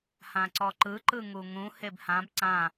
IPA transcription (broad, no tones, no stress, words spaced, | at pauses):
hãǀɔǃɯ ǃɯŋuŋũ hebhãb ǀã